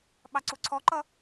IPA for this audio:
ɓ ɑ ǀ u ǀʰ ɔ ǃ ʌ

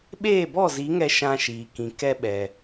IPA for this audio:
ɓ eː˦˨ b ɔ˦˨ z i˨˦ ŋ ɛ˧ ʃ ã˧ ʃ iː˨ k ĩ˨ k ɛ˧ ɓ ɛ˨

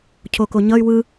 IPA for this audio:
cʰ o k o ɲ ʌ y̯ w ɯ

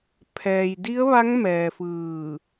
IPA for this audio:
pʰ ɛː˩ j d i˧˥ ə̯ ʋ a˧˥ ŋ m ɛː˩ f ɯː˧˩

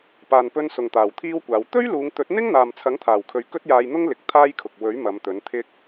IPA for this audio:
p aː˨ n p ɵ˧ n s ʊ˨˩ ŋ t̪ aː˨˩ w t̪ʰ iː˥ w kʷ aː˨˧ w t̪ ɵ˥ ɥ l uː˨˧ ŋ t̪ ɵ˨˥ t̚ n̪ ɪ˥ ŋ n̪ aː˨ m t͡sʰ ɐ˨˥ ŋ t̪ʰ aː˨˩ w kʰ ɵ˨ ɥ k ɵ˥ t̚ j aː˧ j n̪ ʊ˥ ŋ l ɪ˨˥ k̚ t̪ʰ aː˥ j kʰ ʊ˨ k̚ w ɵ˨˥ ɥ m ɐ˨˧ m t̪ ɵ˨˥ n t̪ʰ ɪ˥ k̚

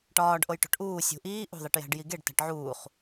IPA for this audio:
ʈ ɒː ɖ ʔ o j ʈ o̤ ʈ ʔ uː sʲ ṳ ʔ iː ʔ ṳ ðˤ i ʈ j æ̤ ɖ j i ɡ e ɖ t æ̤ ʈ ʕ uː χ

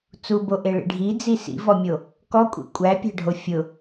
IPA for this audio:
t͡s u b o ʔ e ɭ ḭ ɖʱ i d͡z i s ḭ v ɔ mʲ o | k ɔ kʷʼ ḭ kʷʼ æ pʲ æ̤ ɖʱ o fʲ ʊ

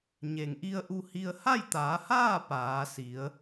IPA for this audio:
ɲ e˩ ŋ ʔ i˧ ə̯ ʔ u˧ h i˧ ə̯ h a˥˨ j t̪ aː˩˧ h aː˥˨ p aː˩˧ s i˩˧ ə̯

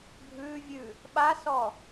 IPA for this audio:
bʱ ʉ vʲ ʉ | ɓ a s ɔ

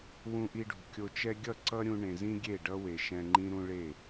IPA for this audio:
w ũ˧ ʔ i˧ ɖ ṳ˨ kʲ o˧ t͡ʃ ɛ˦ ɡʲ ʌ˦˨ ǀ ʌ˦ ɾʲ ũ˧ ɳ ẽ˨ z ĩ˦ ɡʲ e˦˨ ɖ ʌ˦ w e˨ ʃ ɛ̃˧ ŋ͡ǃ ĩ˦ ɾ ũ˦ ɭ e˦˨

